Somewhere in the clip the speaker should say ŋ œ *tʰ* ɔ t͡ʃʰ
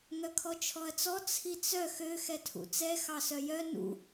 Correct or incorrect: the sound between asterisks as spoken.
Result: incorrect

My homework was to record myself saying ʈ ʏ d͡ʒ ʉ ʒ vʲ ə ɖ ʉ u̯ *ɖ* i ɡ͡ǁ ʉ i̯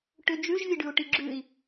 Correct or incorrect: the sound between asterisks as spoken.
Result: incorrect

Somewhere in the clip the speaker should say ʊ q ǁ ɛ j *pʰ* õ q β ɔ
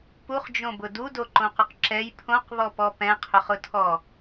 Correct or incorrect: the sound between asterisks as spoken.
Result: correct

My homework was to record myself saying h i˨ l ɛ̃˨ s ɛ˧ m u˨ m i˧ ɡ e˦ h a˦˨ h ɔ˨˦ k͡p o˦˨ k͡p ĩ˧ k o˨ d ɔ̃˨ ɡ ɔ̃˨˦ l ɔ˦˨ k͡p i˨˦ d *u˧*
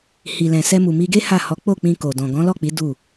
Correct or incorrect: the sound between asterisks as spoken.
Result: incorrect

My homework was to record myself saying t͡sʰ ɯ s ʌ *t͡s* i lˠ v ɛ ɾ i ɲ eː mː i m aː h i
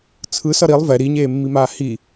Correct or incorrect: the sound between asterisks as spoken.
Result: incorrect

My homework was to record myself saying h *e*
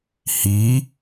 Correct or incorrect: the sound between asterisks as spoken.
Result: incorrect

